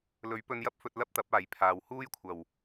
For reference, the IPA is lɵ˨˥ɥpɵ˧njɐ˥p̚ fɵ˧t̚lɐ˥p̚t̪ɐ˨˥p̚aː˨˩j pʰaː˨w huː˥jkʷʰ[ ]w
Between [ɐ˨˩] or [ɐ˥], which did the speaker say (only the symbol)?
ɐ˨˩